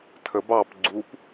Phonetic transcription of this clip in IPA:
tʰ ə b ɑ p ɡ͡ǀ u p

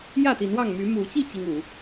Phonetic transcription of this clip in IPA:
j ä˥˨ t̪ i˨˦ n w ɑ˥˨ ŋ m y˨˦ m u˨˦ t͡ɕ i˥˨ t͡ɕ i˦ ŋ u˨˦

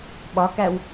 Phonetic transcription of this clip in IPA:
ɓ ɒ k æ w

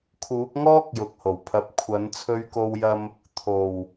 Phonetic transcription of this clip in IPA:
kʰ uː˨˥ k̚ ŋ ɔː˥ k̚ j ʊ˨ k̚ h o˨˩ w pʰ ɐ˨˥ p̚ kʷʰ ɐ˨˥ n t͡sʰ ɵ˧ ɥ k o˧ w j ɐ˧ m | t̪ʰ o˨˩ w

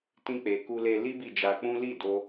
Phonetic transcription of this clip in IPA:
t ĩ˧ k͡p e˨ k u˧ l e˧ l i˦ b i˦˨ d͡ʒ a˧ k͡p ũ˦ l i˦˨ d o˧

